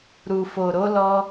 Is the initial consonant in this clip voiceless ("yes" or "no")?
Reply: no